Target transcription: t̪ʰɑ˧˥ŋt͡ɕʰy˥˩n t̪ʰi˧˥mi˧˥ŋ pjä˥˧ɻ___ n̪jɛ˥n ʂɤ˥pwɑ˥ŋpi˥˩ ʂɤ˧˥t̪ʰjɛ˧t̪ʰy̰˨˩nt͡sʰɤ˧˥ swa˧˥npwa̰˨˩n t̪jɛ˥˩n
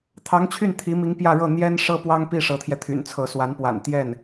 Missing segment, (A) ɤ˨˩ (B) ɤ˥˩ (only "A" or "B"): B